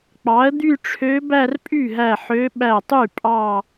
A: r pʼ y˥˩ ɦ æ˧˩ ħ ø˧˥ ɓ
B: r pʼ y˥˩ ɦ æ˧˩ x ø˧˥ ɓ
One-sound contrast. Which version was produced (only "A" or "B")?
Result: A